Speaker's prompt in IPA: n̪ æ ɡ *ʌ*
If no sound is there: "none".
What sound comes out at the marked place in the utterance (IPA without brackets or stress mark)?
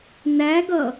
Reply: ʌ